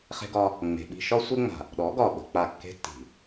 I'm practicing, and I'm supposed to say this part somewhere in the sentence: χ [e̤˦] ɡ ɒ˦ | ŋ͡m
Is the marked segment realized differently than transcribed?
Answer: no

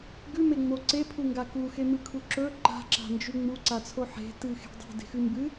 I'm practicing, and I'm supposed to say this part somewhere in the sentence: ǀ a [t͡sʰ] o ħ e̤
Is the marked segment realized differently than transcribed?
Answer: no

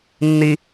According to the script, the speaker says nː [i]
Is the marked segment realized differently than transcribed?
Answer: no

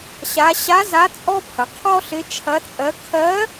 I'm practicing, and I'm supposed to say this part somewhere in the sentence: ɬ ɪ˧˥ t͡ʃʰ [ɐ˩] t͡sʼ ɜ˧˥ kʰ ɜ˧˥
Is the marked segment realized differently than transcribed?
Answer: yes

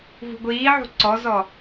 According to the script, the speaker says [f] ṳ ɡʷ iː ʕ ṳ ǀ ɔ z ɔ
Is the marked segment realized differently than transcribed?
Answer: yes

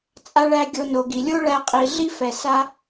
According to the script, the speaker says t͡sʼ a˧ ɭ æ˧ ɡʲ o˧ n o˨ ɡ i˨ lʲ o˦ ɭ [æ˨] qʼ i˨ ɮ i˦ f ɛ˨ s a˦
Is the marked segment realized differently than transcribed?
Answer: yes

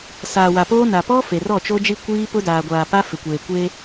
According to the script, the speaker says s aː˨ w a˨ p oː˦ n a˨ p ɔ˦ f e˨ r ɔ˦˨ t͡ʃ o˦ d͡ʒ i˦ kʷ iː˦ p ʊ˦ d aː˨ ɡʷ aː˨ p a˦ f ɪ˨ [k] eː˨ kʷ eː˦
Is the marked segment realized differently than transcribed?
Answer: yes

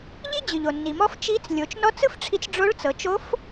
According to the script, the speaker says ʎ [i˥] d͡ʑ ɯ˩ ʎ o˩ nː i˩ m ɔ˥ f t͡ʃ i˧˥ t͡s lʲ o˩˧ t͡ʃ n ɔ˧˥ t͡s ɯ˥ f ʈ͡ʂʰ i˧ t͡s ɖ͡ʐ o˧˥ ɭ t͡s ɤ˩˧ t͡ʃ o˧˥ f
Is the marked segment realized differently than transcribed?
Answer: no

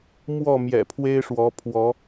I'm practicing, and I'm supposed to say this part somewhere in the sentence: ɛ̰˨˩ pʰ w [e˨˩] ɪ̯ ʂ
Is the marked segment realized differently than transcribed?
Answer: yes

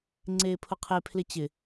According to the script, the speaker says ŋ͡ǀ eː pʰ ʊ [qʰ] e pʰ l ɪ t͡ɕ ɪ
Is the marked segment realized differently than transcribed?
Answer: no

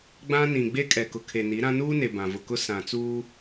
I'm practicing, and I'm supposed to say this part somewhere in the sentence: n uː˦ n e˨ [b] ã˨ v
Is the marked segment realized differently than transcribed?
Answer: no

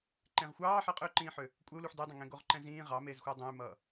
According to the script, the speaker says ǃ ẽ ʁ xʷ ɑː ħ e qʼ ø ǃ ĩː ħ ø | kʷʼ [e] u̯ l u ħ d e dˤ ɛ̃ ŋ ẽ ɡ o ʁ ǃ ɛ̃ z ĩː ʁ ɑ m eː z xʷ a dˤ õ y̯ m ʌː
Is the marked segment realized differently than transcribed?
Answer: no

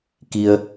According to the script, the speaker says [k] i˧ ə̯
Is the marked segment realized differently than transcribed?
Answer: no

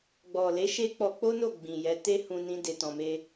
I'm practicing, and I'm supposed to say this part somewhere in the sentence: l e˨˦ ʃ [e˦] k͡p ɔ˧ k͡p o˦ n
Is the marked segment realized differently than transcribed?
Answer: no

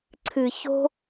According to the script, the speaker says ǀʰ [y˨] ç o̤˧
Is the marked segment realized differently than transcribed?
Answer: yes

